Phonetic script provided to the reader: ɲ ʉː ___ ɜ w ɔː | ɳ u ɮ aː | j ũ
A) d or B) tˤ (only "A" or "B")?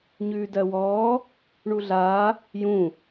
A